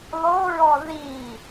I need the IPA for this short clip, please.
lˠoɹɔ ði

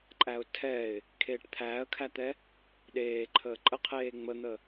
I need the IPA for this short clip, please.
ǃʼæʊ̯tʰɛɪ̯ | kʰeːʈt̪ʰæːə̯kʰæt̪ɛ | ɗeːǃʰəː ǃʼəqʰeː ŋ͡mən̪ə

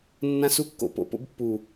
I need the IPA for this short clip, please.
nːã˦su˦ kːo̰˧po̰˨po̰˦bpːu˨

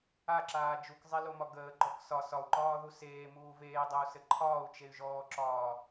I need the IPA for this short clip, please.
aǁaː d͡ʒukzˤelomɒ ɡəːɡ͡ǃɔk sɒ sɒu̯ǃɒːðu seːmuː veːdˤəu̯sɘ ǃʰɒːu̯t͡ʃey̯ʒɔːǁɒː

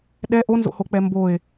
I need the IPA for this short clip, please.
ɗɛ ʔonzo̰hok͡pɛ mboe̯

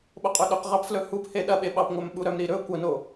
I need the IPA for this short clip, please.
ɓoqʼɵɗɵq ʁɑpflɵ hup heɗɐɓe ɓɑpŋʷœmɓuɾœm ɾiɾɵ kʷɐno

